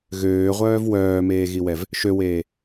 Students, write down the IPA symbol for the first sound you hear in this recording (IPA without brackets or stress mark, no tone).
ɣ